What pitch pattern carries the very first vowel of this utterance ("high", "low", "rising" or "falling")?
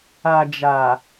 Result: low